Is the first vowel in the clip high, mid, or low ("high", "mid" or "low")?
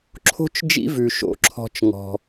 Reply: mid